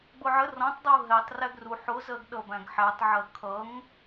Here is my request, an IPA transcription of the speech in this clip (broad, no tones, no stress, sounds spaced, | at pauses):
ɡ͡b ʊ ʕ ə r ɔ̃ tˤ dˤ u ɦ ɛ tˤ r æ ɡ r u ħ ʊ z ɜ ɡ ɗ ʌ b æ̃ ɡ ħ æ tˤ ʕ ɜ kʰ ʌ ŋ